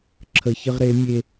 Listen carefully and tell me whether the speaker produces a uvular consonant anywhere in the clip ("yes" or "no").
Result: yes